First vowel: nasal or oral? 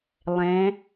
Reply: nasal